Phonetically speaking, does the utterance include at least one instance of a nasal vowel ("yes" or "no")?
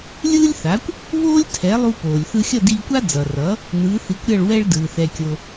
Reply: no